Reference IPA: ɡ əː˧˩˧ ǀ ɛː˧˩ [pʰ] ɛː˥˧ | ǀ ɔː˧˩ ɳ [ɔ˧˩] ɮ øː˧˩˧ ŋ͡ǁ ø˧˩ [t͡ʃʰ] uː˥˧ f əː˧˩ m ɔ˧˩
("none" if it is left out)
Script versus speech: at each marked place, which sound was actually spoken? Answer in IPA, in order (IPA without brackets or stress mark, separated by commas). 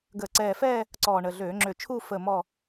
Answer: f, ə˧˩, t͡ʃʰ